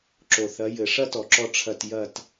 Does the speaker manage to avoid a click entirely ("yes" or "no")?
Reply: no